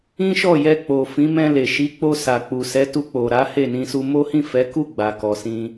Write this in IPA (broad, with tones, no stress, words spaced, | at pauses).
ĩ˦ʃɔ˦˨ jɛ˧ k͡po˨fĩ˨˦ mɛ̃˧le˨ ʃi˨˦k͡po˧sa˨k͡pu˨ sɛ˨˦tu˧k͡po˨ɾa˨˦ he˦˨nĩ˧su˧ mo˦hĩ˦˨fɛ˨˦ku˦˨ ɡ͡ba˨kɔ˨sĩ˧